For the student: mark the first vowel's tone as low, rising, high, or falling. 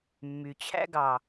low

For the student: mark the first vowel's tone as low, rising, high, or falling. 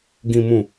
low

